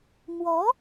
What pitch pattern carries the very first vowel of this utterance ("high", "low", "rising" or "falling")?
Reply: rising